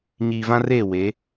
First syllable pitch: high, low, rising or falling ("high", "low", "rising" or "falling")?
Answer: low